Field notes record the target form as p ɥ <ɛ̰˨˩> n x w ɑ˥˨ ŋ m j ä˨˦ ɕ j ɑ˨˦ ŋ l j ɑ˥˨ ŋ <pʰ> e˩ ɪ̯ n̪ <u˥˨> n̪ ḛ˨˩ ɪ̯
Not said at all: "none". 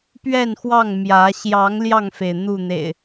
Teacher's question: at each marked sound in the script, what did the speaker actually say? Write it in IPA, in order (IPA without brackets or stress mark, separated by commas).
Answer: ɛ˥˨, f, u˥˨